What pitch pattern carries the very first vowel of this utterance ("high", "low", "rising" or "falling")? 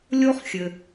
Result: high